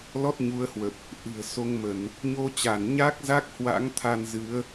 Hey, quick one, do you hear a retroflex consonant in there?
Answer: no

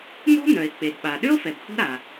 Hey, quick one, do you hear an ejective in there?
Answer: no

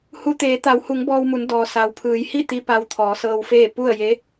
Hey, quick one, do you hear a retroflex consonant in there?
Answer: no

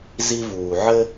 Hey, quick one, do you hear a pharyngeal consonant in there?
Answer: yes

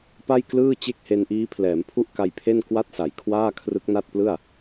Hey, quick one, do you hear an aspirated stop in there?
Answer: yes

